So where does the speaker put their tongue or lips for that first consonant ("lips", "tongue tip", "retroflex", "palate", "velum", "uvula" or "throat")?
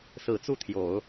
tongue tip